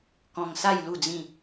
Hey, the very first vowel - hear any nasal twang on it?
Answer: yes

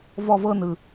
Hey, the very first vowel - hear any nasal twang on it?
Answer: no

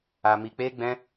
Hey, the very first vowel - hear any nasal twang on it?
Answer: no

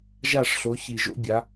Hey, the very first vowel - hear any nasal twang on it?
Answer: no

